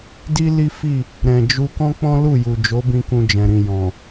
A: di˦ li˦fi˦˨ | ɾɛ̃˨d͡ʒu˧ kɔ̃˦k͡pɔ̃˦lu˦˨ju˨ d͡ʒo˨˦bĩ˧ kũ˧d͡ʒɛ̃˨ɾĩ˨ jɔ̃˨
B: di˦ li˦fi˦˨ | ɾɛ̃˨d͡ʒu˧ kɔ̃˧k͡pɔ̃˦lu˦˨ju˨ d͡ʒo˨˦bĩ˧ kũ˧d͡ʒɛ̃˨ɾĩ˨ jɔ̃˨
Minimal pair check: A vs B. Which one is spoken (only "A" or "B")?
A